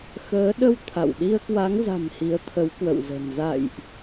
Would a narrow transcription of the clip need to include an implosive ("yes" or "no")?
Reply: yes